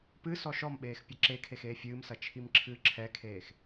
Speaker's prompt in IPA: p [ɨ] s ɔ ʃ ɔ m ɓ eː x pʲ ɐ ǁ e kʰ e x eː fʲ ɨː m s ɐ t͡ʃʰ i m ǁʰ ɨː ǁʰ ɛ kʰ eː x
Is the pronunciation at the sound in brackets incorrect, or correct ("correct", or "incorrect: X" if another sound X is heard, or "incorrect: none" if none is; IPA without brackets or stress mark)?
correct